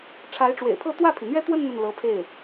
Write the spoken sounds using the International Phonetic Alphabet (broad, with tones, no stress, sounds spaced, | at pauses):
ʈ͡ʂʰ a˧˥ ɪ̯ ʈ͡ʂ w ḛ˨˩ ɪ̯ pʰ ɤ˥˧ t̪ w ä˥˩ pʰ i˩ n̪ ɥ ɛ˥ t̪ w ə˥˧ n n̪ ə˥˩ n l ɤ˧˥ pʰ e˥˩ ɪ̯